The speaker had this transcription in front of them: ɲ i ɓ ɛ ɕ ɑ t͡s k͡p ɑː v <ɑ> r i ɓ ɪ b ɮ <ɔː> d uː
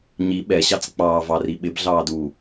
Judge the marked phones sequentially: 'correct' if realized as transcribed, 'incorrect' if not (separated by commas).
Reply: correct, incorrect